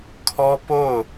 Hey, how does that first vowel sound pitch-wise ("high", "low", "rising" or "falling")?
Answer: high